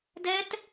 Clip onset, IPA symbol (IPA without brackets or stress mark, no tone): d